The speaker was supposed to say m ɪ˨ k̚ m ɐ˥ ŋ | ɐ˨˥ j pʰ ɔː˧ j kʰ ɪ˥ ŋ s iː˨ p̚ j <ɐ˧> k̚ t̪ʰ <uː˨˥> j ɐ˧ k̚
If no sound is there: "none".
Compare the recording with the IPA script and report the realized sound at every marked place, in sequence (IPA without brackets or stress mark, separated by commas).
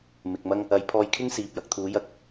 ɐ˧, uː˨˥